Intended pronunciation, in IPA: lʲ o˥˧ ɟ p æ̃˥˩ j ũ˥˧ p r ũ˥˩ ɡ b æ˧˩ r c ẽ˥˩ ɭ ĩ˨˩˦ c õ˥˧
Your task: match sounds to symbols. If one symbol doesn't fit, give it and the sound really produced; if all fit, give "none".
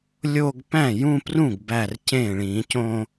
ɟ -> ɡ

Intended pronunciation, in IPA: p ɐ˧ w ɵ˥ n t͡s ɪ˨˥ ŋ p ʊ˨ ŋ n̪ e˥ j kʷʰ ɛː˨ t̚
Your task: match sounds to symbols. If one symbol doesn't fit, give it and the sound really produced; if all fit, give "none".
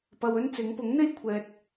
ʊ˨ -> ʊ˨˥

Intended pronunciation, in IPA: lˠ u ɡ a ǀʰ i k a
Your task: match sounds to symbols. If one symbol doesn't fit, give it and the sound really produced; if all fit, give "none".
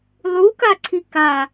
ɡ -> k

